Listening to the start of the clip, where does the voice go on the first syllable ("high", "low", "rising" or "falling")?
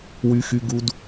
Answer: high